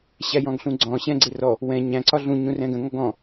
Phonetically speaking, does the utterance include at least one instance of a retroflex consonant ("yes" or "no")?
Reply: no